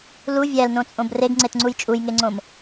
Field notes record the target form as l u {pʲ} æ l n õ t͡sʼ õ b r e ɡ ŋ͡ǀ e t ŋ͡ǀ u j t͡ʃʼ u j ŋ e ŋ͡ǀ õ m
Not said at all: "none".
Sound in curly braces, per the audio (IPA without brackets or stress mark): vʲ